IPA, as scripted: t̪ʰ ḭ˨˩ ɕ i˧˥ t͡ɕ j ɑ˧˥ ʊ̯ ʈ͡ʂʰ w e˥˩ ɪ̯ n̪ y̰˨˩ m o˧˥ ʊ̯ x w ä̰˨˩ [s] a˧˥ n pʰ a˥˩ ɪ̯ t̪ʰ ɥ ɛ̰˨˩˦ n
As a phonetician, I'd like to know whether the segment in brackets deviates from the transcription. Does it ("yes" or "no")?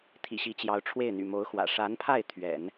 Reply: yes